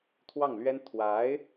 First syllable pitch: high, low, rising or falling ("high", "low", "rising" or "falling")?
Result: falling